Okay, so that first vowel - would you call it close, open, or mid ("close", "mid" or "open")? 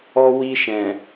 mid